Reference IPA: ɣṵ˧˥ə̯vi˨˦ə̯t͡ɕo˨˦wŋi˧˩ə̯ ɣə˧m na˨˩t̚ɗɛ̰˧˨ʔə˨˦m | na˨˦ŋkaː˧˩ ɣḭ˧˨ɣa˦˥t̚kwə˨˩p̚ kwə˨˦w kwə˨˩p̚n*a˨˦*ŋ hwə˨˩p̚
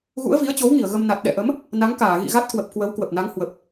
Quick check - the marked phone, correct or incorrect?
correct